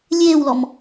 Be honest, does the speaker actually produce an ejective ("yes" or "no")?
no